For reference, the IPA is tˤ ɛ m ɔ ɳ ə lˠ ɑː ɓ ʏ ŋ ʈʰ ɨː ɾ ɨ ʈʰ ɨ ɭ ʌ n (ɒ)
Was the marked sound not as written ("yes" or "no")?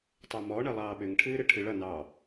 yes